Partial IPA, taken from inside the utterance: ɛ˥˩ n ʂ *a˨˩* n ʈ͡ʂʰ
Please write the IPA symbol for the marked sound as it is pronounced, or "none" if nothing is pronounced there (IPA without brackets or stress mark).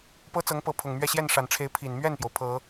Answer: a˨˩